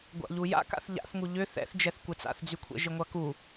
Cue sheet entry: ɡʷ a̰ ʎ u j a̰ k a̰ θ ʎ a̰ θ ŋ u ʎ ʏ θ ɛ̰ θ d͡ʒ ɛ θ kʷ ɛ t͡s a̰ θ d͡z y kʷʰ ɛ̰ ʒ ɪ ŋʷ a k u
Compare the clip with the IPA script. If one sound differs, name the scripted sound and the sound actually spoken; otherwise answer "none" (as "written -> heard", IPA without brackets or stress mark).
none